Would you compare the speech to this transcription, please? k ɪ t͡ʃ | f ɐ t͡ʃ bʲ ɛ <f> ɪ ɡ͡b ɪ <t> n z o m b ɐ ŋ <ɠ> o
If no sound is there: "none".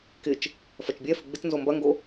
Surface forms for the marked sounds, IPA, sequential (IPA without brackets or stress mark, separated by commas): f, t, ɡ